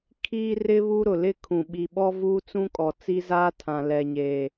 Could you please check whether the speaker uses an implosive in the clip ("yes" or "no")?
yes